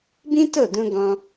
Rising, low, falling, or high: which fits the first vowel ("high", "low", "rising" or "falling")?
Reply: high